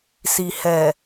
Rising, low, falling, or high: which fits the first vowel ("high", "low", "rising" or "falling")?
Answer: low